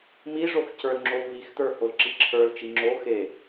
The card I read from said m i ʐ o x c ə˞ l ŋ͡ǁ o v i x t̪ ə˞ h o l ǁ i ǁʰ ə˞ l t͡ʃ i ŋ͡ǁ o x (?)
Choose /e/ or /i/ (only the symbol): e